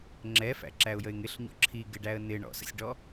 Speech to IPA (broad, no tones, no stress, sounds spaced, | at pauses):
ŋ͡ǁ ɛ f æ̰ ǁ æ ʊ̯ j ə ɪ̯ ŋ ɪ ɬ ɲ ɔ̰ ǁʰ i ɡ ɪ ɖ æ ə̯ n ɪ ɳ ɔ̰ s ə̰ sʲ ɖ ɔ